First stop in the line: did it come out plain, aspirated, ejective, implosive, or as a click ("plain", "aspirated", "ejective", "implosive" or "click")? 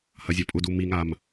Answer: ejective